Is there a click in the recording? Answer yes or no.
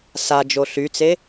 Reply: no